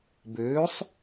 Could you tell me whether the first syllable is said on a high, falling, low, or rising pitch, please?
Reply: rising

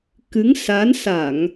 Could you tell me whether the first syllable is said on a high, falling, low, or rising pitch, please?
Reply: rising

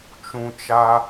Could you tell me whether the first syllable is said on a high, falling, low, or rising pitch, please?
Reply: low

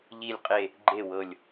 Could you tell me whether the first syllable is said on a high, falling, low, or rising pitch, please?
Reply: falling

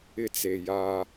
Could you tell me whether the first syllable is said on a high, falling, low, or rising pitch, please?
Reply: high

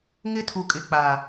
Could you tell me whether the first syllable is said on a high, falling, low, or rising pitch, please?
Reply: high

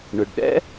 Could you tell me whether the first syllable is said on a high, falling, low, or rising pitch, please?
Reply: low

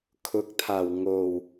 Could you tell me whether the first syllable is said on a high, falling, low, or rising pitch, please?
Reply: rising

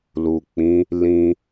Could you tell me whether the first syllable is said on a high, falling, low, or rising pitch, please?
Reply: low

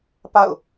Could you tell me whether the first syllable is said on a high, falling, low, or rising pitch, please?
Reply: falling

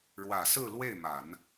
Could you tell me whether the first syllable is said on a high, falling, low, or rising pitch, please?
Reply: low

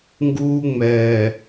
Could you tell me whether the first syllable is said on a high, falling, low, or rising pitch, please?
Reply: high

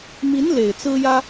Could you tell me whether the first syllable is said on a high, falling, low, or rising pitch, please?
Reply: rising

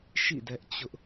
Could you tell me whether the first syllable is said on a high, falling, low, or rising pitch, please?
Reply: falling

